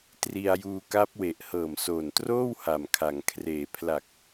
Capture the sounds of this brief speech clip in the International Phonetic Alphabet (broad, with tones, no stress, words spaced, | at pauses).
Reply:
tri˧a̯juː˧ka˦˥p̚we˨˩ʔ hɤː˨˩msoː˨˩ntroː˥˩w ha˨˩mkʰa˩˦ŋkʰreː˨˩ pʰla˨˩k̚